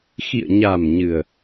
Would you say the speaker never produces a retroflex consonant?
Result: yes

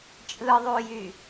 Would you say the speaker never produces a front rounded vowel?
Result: no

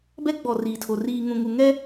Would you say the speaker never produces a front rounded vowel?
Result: yes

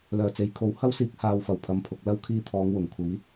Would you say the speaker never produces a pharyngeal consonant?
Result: yes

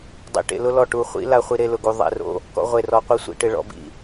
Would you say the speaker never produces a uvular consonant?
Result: no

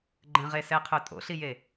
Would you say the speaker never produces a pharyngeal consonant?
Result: yes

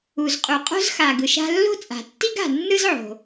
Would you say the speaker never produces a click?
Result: yes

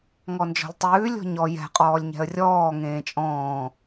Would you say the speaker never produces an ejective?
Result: no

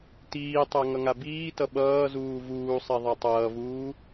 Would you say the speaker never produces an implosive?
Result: no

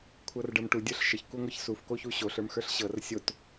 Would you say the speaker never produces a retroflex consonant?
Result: no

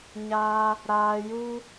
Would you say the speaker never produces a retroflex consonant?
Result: yes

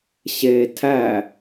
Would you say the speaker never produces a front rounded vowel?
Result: yes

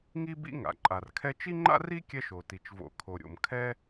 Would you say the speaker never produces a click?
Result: no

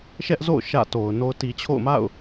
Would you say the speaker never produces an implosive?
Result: yes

